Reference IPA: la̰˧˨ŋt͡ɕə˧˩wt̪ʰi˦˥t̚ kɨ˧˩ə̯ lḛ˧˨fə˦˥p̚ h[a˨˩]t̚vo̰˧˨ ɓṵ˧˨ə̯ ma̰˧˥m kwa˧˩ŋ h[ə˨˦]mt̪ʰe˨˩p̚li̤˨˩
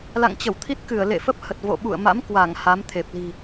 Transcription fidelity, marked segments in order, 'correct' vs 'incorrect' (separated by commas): incorrect, incorrect